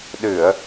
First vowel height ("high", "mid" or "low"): high